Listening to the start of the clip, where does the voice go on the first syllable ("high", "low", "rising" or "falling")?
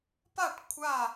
falling